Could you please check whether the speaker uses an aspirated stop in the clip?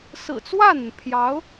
yes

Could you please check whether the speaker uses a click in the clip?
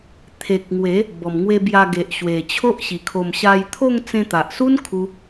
no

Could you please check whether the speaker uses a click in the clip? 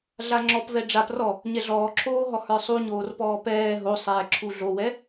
yes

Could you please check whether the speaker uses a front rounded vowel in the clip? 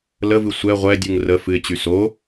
yes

